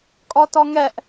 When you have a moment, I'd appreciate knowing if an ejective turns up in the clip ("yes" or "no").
yes